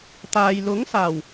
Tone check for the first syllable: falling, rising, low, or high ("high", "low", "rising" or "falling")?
low